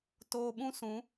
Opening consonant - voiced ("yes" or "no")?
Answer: no